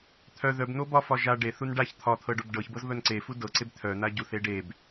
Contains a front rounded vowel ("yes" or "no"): yes